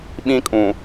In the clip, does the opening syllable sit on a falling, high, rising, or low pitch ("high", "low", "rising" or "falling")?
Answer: high